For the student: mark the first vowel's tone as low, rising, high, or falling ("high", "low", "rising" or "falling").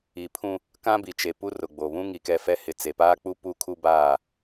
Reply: low